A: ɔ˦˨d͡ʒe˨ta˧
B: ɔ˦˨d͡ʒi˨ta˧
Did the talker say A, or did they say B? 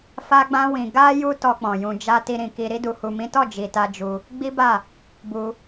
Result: B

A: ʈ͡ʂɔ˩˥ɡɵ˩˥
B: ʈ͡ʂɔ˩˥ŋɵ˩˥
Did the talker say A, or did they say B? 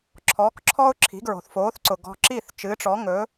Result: B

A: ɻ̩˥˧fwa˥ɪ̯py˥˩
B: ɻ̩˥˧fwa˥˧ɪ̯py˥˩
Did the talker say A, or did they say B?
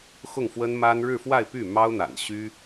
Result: B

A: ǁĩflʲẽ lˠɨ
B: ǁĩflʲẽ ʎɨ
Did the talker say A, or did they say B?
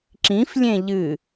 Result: B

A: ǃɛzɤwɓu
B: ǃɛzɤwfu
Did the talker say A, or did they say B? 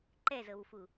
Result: B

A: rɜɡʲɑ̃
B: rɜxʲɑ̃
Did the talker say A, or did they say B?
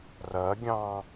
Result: A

